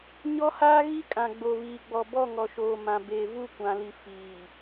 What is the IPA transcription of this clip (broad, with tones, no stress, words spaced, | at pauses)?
ɲɔ˦haː˦ɣi˦kʼã˨ ɡ͡bo˨βiː˨ɡ͡bɔ˨ bɔ˦˨ŋɔ˨ʃoː˨ mã˨beː˨ vu˦˨kʷã˨li˨ fiː˨